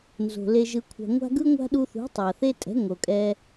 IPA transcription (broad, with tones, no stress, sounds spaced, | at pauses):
n z o̤˨ l e˧ ʒ ɯ˧ kʷʰ a̤˧ ŋʷ a̤˦ ɡ ɯ˦ ŋʷ a̤˦ ɗ u˧ θ ṳ˨˦ tˤ a˨ θ e˦ tʼ ɛ̤˨˦ ŋ o˨ kʼ ɛ˧